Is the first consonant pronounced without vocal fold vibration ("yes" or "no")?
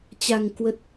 yes